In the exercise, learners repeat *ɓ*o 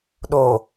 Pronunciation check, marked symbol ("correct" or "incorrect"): incorrect